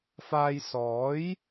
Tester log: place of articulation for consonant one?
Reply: labial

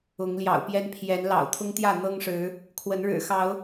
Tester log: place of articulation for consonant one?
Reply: velar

